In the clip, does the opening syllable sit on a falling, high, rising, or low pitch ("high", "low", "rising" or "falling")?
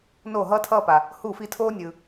falling